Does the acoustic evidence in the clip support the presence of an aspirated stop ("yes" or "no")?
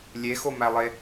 no